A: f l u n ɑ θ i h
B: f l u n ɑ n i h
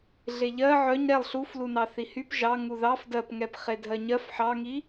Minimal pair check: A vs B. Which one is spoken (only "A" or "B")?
A